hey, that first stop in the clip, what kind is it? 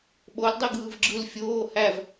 implosive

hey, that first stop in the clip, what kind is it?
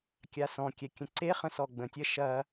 plain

